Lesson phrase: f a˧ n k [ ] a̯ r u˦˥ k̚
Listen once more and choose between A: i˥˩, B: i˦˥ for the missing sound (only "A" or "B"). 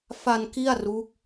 A